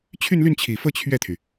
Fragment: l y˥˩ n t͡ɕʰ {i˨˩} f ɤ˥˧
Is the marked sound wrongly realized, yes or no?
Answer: no